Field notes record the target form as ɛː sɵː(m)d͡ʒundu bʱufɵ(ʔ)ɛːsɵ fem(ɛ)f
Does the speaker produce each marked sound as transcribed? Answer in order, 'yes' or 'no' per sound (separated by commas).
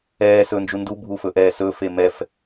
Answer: no, yes, yes